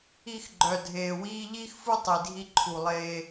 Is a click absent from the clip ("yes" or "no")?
no